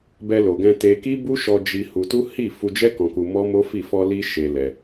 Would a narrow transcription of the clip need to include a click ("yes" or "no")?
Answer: no